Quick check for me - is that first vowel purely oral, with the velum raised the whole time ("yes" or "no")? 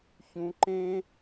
no